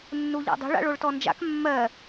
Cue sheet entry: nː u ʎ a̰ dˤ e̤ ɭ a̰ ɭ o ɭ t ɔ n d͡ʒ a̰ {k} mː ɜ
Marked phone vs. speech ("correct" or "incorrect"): correct